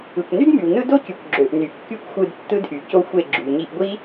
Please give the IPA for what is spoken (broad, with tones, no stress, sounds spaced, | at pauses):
ɯ˨ kʷ n y˦ d m y˨ w n ɯ˦ d o˦ c y˨ kʷ ɡ͡ǁ ø˨ ʔ n y˨ kː y˦ kʷ xʷ ɯ˧ d tː ɯ˦ d ʔ y˨ c o˦ xʷ e˦˨ ɡ͡ǁ y˨ ɲ i˧ ʔ ɡʷ i˦